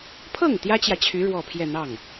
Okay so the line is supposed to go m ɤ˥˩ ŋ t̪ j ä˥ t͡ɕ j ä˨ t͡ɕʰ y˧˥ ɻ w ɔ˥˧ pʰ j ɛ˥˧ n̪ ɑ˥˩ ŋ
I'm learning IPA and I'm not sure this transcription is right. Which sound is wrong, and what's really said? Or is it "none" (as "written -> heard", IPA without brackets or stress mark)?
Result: m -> pʰ